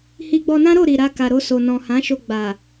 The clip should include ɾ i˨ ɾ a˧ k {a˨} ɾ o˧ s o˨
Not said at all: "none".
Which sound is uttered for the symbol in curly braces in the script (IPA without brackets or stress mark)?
a˨